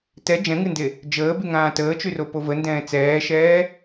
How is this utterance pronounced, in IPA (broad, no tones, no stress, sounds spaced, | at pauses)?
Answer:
t ɛ d͡ʒ ɛ̃ ŋ ɨ n d e | d͡ʒ əː b y ŋ ãː t əː t͡ʃ y r o p o v ə n d ɛ̃ː t͡s ɛː ʃ ɛː